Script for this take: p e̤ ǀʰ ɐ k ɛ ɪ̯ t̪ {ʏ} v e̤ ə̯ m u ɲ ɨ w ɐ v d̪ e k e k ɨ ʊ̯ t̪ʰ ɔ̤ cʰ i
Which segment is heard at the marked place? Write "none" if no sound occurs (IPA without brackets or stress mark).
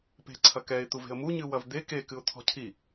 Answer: u